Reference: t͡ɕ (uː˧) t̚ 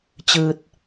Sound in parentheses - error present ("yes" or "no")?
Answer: yes